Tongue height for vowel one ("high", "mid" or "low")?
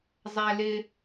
low